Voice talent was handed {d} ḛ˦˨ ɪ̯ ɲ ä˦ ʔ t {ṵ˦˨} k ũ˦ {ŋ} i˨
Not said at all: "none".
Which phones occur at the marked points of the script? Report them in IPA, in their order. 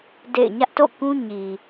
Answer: d, o̰˦˨, ɲ

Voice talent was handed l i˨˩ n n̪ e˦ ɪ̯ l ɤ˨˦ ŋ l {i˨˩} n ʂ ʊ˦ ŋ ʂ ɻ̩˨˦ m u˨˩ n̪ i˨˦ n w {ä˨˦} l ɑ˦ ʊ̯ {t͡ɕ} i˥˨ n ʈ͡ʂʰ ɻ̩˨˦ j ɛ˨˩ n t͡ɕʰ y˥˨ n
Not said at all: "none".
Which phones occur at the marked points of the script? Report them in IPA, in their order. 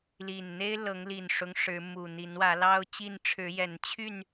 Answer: i˨˩, ä˨˦, t͡ɕ

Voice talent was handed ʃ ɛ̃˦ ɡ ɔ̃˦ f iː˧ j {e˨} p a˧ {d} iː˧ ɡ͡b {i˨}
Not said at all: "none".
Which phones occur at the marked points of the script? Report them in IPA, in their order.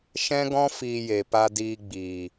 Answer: e˨, d, iː˨

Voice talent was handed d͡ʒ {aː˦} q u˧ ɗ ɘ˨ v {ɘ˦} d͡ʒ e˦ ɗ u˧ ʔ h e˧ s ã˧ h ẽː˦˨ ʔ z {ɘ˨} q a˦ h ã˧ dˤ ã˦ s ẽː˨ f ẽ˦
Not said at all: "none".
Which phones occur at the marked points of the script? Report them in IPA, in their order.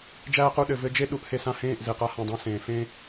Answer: æː˦, ɘ˦, e˨

